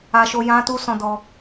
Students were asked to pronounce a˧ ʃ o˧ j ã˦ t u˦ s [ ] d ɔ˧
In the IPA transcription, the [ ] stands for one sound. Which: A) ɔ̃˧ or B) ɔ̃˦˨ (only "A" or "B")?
A